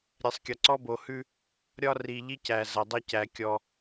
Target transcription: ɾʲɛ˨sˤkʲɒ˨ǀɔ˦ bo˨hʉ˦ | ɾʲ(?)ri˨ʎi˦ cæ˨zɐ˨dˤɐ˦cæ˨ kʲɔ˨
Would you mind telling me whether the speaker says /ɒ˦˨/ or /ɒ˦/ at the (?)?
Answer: ɒ˦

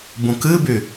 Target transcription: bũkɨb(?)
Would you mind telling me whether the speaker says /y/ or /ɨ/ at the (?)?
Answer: y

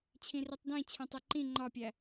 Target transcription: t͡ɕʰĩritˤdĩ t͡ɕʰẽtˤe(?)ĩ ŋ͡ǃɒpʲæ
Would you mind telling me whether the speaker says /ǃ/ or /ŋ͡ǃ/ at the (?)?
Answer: ǃ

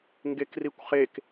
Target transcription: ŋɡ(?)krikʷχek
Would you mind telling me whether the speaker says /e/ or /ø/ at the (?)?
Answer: e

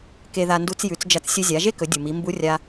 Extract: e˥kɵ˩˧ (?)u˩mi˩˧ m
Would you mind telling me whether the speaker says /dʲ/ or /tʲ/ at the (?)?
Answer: dʲ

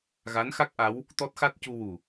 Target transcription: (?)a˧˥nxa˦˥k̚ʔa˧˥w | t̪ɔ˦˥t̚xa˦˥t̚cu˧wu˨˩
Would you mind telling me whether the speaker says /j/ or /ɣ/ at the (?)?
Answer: ɣ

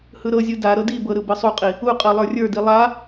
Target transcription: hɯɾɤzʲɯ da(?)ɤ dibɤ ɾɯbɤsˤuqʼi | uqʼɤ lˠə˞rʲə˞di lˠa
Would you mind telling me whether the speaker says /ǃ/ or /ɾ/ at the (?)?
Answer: ɾ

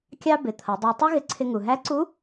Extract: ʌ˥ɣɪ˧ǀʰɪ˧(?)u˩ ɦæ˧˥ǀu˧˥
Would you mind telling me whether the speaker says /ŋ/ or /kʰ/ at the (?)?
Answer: ŋ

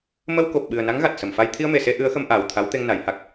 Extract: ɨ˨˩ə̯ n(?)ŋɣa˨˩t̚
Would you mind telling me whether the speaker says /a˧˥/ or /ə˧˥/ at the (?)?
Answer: a˧˥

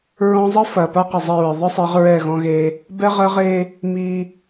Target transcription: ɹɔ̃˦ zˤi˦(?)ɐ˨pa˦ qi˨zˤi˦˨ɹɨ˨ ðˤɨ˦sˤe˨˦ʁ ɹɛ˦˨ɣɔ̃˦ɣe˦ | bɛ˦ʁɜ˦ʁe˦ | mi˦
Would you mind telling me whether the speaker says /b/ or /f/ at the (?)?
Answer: f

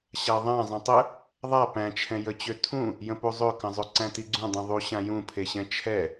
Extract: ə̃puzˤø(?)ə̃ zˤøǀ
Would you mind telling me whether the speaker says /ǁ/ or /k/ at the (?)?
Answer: k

